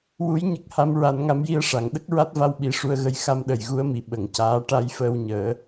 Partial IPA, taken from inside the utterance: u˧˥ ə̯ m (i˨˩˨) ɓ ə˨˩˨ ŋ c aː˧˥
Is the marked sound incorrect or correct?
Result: incorrect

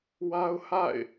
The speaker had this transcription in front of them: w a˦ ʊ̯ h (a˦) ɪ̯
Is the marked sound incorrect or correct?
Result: incorrect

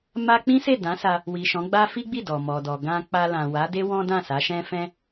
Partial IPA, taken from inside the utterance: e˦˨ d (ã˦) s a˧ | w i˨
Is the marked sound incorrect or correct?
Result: incorrect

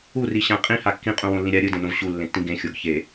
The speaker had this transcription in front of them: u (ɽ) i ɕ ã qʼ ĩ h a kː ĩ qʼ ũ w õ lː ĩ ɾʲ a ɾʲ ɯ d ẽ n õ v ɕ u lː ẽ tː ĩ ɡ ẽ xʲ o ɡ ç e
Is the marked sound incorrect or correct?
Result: incorrect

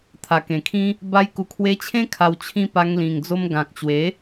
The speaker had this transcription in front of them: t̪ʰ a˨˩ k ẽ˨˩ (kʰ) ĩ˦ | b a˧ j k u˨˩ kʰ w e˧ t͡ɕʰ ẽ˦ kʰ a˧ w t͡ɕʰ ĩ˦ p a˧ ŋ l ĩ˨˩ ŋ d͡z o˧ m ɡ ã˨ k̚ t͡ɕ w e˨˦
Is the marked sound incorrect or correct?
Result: correct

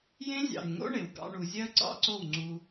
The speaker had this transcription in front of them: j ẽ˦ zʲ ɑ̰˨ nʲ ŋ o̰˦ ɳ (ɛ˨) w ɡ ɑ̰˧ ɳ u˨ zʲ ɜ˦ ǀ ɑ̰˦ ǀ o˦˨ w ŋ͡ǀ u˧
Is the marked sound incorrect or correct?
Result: incorrect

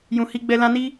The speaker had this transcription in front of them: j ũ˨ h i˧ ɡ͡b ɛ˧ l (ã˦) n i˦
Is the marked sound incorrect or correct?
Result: correct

